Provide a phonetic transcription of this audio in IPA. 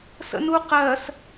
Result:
s ə̰ n u q ɜ s

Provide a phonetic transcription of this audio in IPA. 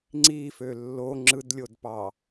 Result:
ŋ͡ǀ i f ø lː o ŋ͡ǁ ɯ d lʲ o d p ɑ

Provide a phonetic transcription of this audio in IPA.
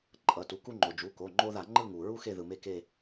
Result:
ǃʼ ʌ˩˧˩ t u˩˥ k u˦ ŋ͡ǃ o˩ d͡ʒ u˩˧˩ k o˩˧˩ ŋ͡ǃ o˦ ð a˧˩˧ ŋ͡ǃ ɯ˦˨ ŋ u˩ ɹ u˦ x e˦˨ ð ɯ˩ m e˦˨ k e˦˨

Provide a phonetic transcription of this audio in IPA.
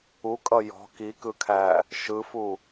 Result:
u kʼ ʌ j ɔ̤ k i k ɯ kʰ æ | ʃ ɯ f u

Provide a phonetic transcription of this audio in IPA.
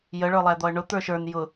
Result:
j ə ɭ ə˞ lˠ æ d̪ ɔ ə̯ ɳ ʊ t̪ ə˞ ʃ ə˞ n j ʊ

